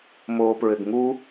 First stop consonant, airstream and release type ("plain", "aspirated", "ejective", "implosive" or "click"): plain